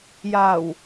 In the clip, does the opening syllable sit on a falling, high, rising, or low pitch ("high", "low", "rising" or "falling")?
low